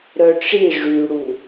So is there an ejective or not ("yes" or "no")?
no